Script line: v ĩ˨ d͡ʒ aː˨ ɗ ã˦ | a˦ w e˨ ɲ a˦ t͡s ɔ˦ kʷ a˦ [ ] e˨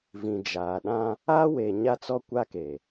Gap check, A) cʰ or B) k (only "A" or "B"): B